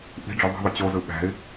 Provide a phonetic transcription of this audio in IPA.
ʔ i̤ ɖ͡ʐ ʏ ðˤ i̤ ðˤ ʊ t͡ɕ o z ɯ ɓ æ̤ ɪ̯

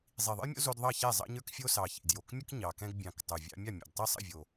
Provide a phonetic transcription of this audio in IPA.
zˤ i˨˩ ðˤ ə̰˦ j mʲ o̰˦ z o˦ d ðˤ ɑ˥˨ ç ɛ˥˨ zˤ ɑ̰˦ ɲ ə˞˦ k fʲ o˦ s ɑ˨˩ ç ḭ˨˩ d j o˨˩ k mʲ ə˦ k ɲ ɑ˨˩ k ɛ̃˦ ɡ bʲ ɑ̃˨˩ k tˤ o˨˩ vʲ ɑ̰˦ mʲ ɑ˥˨ mʲ o̰˨˩ d tˤ i˥˨ sˤ ə̰˥˨ vʲ o˨˩

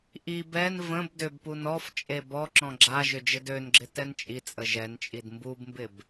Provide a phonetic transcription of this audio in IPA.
ʔ i b ɛ n v ə̃ b d ʏ b p u n ɔ f t͡ʃʼ e b ɔ ǁ ɔ̃ ɡ͡ǁ a ʒ ʏ d͡ʒ ə d ø n ɡ͡ǁ ɪ t ɛ n t͡ʃʼ i t͡sʼ ə ʒ ɛ n t͡ʃʼ i d m b u b m b ɪ b

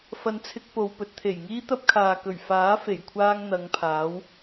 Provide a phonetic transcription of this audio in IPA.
f ɐ˧ n t͡sʰ ɪ˧ k̚ p o˨ w p ɵ˨˥ t̚ t̪ʰ e˨˩ j ŋ iː˥ t̪ ɐ˥ p̚ kʰ aː˨ k ɵ˨˩ ɥ f aː˨˥ f e˨˩ j kʷʰ aː˧ ŋ n̪ ɐ˨˧ ŋ pʰ aː˨˥ w

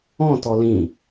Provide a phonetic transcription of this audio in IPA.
ɔ̃ t ɔ l ĩ

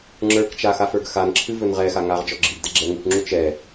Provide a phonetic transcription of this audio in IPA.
ŋ͡ǁ ə˞ k t͡ʃ a x a f ə˞ ɡ x a n ǁʰ ɨ v ɵ n ʁ ɛ x a ŋ a ʁ d͡ʒ ɔ ɡ͡ǁ i ɡ d ɛ ɡ͡ǁ ɛ ŋ ɨ k ŋ͡ǁ u t͡ʃ ɛ

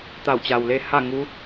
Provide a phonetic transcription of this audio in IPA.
t̪ a˧˩ w t͡ɕ a˩ w l e˧ h a˥˨ ŋ u˧˥

